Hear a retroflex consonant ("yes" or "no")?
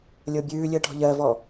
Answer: yes